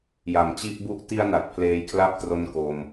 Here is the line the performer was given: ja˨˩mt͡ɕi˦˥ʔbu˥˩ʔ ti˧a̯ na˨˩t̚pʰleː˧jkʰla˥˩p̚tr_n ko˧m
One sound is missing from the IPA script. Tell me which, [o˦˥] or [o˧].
o˦˥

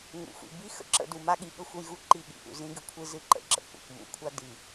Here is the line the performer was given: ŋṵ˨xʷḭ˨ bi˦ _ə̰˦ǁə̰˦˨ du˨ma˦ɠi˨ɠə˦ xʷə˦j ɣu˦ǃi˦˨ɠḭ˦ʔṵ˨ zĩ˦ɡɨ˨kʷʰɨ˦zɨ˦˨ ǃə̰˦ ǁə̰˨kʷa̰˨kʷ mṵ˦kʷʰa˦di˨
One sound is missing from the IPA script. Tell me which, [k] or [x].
x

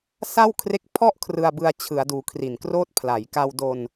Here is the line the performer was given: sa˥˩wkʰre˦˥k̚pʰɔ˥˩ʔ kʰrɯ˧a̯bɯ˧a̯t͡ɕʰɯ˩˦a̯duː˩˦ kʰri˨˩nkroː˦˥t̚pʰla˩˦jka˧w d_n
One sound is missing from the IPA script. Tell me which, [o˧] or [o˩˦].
o˧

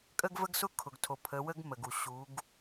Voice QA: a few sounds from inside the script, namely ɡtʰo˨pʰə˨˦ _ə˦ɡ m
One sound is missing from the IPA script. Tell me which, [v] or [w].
w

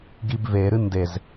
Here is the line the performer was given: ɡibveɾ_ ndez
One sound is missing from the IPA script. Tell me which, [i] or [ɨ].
ɨ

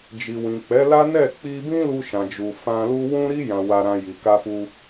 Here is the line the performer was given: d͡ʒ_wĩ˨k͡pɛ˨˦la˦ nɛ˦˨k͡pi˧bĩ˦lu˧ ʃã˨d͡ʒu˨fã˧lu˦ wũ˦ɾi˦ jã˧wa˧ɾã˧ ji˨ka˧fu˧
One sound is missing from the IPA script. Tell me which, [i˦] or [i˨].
i˨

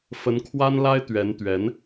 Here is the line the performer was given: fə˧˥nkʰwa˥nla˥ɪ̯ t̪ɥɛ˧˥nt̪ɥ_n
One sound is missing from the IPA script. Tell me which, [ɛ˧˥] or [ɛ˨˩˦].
ɛ˧˥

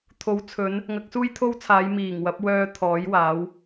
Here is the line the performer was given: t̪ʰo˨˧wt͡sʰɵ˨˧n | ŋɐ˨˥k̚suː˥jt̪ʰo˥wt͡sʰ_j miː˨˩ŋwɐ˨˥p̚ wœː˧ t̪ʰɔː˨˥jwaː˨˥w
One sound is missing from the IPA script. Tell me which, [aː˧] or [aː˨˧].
aː˨˧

